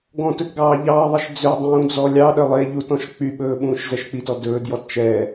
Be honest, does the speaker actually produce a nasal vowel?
yes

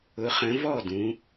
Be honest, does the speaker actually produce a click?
no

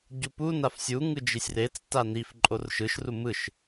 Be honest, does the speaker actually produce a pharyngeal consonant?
no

